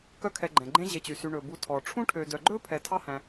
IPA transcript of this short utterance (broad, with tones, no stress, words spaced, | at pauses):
kœ˦kʰɛ˨ɡ͡ǃɛ̃˩ɡ͡ǃẽ˦ ʑe˨t͡ɕy˩sy˨ ɳɵ˩bu˨tʰɔ˩ ʈ͡ʂʰũ˥ʈʰø˨ dœ˨ɡ͡ǃɵ˥ pʰɛ˨tʰɑ˦hæ̃˨